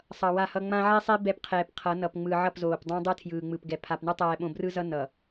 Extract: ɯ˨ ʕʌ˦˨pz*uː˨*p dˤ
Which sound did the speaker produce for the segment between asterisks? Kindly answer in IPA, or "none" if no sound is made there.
oː˨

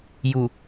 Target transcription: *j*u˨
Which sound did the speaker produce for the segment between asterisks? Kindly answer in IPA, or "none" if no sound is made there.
j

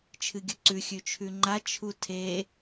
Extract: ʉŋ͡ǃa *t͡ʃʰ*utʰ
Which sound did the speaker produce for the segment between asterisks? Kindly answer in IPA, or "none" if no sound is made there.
t͡ʃʰ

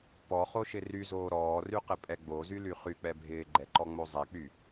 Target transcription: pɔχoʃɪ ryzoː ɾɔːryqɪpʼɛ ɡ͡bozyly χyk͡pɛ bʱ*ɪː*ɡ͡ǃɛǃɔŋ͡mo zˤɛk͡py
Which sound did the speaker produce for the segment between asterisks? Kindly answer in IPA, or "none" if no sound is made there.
ɪː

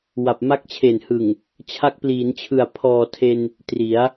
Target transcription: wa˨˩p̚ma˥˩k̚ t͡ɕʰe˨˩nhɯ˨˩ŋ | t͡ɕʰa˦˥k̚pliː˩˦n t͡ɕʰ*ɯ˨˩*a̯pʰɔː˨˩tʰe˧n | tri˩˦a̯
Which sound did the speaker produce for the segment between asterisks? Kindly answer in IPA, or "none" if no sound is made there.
ɯ˨˩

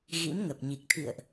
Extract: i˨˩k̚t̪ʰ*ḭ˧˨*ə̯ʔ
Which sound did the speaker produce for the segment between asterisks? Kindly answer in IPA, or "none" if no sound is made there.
ḭ˧˨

